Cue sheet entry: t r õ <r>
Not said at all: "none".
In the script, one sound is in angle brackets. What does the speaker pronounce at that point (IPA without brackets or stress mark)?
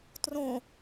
none